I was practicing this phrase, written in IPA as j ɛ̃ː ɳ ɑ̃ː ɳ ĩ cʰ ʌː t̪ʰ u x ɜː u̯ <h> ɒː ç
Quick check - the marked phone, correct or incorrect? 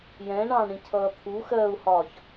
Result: correct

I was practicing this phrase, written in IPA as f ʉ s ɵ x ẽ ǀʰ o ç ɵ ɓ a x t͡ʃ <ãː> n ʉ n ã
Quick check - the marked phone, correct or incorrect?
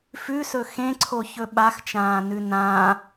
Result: correct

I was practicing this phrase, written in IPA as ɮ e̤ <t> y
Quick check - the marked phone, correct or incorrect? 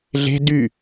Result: incorrect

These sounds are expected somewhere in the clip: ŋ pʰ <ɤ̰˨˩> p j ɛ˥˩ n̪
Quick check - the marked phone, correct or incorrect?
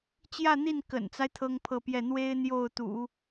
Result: incorrect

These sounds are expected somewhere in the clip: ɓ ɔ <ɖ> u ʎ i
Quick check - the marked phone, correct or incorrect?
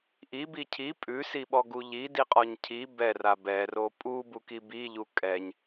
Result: incorrect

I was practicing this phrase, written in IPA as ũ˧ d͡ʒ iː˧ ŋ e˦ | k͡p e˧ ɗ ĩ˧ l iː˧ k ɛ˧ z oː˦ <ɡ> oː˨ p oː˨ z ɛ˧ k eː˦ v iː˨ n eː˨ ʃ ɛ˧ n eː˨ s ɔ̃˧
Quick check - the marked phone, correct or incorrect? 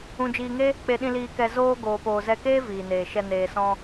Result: correct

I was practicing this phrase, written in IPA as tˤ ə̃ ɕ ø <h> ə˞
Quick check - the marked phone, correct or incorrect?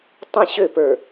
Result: incorrect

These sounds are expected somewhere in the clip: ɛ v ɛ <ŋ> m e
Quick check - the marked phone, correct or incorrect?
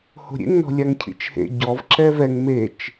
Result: correct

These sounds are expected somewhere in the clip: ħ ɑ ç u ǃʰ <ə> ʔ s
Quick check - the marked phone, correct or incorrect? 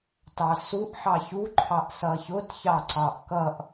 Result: incorrect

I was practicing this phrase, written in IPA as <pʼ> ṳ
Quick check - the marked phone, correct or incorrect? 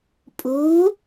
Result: correct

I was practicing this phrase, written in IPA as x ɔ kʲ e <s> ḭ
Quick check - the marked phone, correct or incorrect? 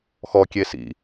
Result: correct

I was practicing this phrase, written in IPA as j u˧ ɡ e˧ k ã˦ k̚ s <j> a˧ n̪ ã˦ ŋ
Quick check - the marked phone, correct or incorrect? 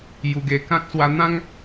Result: incorrect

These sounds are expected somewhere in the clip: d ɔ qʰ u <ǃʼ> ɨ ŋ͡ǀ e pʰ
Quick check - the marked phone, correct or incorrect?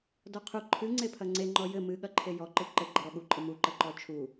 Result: incorrect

